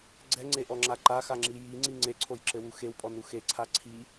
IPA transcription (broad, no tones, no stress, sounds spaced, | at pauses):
ɡ͡ǀ ɛ ŋ͡ǀ e ʔ ɔ ŋ͡ǁ a ǃ a x a ŋ͡ǁ i j i ŋ͡ǀ i ŋ͡ǀ e ǀʰ o j ǁ ɘ w u x e w pʼ ɔ n u x e ǀʰ a ǀʰ i